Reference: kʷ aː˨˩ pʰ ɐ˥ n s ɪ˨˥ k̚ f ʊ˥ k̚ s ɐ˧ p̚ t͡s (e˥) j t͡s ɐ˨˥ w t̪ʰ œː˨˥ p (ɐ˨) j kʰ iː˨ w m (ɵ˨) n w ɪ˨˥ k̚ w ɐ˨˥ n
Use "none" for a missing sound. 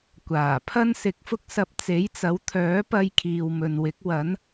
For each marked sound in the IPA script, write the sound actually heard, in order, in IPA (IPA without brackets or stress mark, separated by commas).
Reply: e˨˥, ɐ˧, ɵ˨